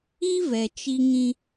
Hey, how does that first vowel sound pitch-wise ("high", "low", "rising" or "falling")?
high